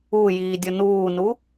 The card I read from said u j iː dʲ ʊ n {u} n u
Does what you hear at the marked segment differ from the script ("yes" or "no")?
yes